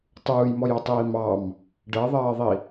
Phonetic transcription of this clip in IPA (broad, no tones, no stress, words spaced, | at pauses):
tˤuːjmɔjʌtˤiː mɑm | ɖɜðˤɜːðˤi